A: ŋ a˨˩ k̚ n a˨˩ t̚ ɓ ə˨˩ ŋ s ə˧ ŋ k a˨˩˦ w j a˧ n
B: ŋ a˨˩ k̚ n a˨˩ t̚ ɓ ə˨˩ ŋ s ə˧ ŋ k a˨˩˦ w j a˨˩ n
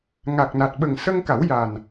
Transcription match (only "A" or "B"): B